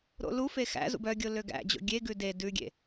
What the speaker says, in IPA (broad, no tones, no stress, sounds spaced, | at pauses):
ɾ o̰ l u f e x æ̰ z ṵ b œ ɡʲ o l ø ɡ æ̰ d͡ʑ o̰ ɡʲ e ɡ ʉ d e d ʉ ɡʲ ḛ